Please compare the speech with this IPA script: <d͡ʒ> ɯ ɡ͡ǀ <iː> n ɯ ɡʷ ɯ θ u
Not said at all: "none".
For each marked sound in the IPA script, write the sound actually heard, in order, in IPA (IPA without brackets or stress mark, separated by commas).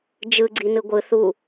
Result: d͡ʒ, i